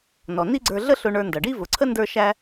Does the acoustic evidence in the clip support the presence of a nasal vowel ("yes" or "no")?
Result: no